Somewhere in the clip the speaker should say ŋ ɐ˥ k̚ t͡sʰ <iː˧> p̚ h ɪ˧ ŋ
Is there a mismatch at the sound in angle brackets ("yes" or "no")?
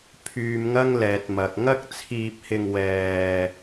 no